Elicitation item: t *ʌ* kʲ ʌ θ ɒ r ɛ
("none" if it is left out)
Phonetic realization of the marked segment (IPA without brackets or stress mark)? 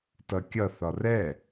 ʌ